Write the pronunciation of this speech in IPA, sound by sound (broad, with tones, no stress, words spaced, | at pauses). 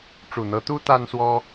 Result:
ʈ͡ʂu˨˩n̪ɤ˧˥t̪u˥ t̪a˥nswɔ˥